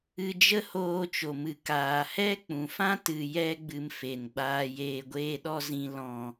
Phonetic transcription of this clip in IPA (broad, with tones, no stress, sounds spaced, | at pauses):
ɨ˧ d͡ʒ ə˦ h oː˧ t͡ʃ o˨ m ɨ˨ k aː˨ h ɛ˦ k͡p ũ˨ f ã˦ t ɨ˨ j ɛ˧ ɡ͡b ɨ˧ m f e˨ n ɡ͡b aː˧ j eː˧ ɡʷ eː˧ ɗ ɔ˧ z ĩ˨ l ɔ̃˨